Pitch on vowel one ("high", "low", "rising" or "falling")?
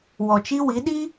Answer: low